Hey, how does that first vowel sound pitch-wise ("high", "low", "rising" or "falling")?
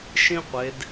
high